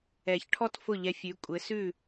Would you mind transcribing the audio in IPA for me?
ɛ˨˩˦çʈʰɔ˥t fʊ˥˩ʎɛ˧fʲʉ˩˥ kʷʼɘ˩˥sʉ˥˩

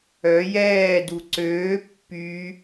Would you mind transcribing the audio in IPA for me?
œ jɛːdu ǀøː pːy

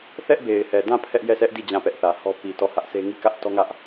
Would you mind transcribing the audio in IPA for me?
θɛ˦ʔbe˨ɪ̯hɛ˨dã˦˨ pʰɛ˦ʔjɛ˦˨sʰɛ˦ʔdi˦˨ d͡ʑã˦˨pɛ˦ʔθä˨hɔ˦ pi˨ tɔ˦˨hä˦ʔsʰe˦ ŋi˦˨kä˦ʔtɔ˦ŋä˦ʔ

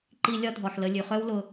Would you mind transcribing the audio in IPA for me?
ǃi˧ lʲɒ˦dʱɔ˨ħlə˧ lʲʉ˨χœ˦w lʊ˧

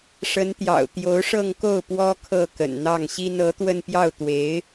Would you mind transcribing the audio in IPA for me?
ʂə˧˥nt̪jɑ̰˨˩ʊ̯ t̪jo˧˥ʊ̯ʂɤ˥˧ŋko˥˩ʊ̯ pwɔ˥kʰɤ˥˩ kə̰˨˩nn̪ɑ˥˩ŋɕi˥n ɤ˧˥t̪wə˥˧npjɑ˥˩ʊ̯t̪we˧˥ɪ̯

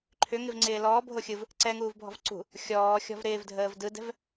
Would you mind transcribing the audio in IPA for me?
ǃʰʏ ŋɪvŋ͡ǀɪːlɔː bʱoxʲɯv | ǀɛŋuːv bʱɔ̤vǀṳ | xʲɔː xʲɔ̤vɾɪːvdʱəːv dɯdɛ̤v

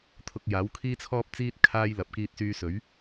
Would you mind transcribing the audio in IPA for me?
t̪ʰʊ˧k̚jaː˨˥w kʰiː˥t͡sʰɔː˥p̚t͡siː˥t̚ kʰaː˥j lɐ˨p̚kiː˧t̚syː˧sɵ˨˥ɥ

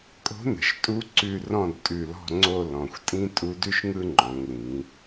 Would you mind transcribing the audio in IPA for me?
kʼo̤˧˥nə̤˩˧ʃtʼu˧˥ ǀʉ˦˨ rɔ̃˦˨dtʼʉ˨˩lɔ̤˦˨ŋ͡ǀo˦˨ lɔ̃˨˩xʷtʼĩ˥ tʼu˧˥dʉ˥ʃŋɯ˥ ŋ͡ǃɔ̃˩˧ŋlĩ˩˧

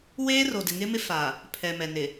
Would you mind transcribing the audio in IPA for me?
weː˦ro˨dɪ˨ ŋɪ˦mɪ˦fa˨ | pʰɛ˨mɛ˨ nɪ˨

